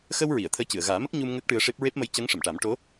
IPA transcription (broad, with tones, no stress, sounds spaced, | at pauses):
x ə˧ w ɹ i˨˩˨ ə̯ t̪ʰ əː˧˥ c ɨ˨˩˨ ə̯ ɣ aː˨˩˦ m ə˦˥ k̚ ɲ u˧ m ŋ əː˦˥ k̚ ʈ ɨ˧ ə̯ ʂ e˦˥ p̚ ɹ e˦˥ p̚ m ə˧˥ j c əː˧˥ ŋ ʂ ə˨˩˨ m ʈ a˨˩˦ m ʈ o˧˥